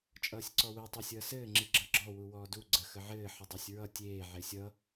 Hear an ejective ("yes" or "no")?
yes